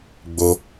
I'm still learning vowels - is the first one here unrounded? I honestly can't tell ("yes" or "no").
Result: no